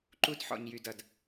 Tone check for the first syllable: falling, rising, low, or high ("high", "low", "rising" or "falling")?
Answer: high